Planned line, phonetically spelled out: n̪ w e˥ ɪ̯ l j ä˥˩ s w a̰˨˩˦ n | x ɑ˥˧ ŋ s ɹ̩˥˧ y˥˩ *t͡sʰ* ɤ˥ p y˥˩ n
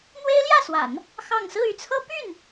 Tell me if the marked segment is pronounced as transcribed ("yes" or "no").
yes